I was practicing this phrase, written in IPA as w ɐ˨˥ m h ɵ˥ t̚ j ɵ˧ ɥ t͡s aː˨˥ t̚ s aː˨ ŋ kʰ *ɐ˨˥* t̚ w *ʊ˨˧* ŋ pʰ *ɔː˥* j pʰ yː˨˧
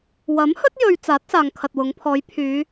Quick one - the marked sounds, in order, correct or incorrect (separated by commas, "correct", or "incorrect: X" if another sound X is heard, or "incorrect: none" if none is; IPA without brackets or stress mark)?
incorrect: ɐ˨, correct, incorrect: ɔː˨˧